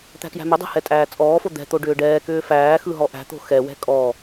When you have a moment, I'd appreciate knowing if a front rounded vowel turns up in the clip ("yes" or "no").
yes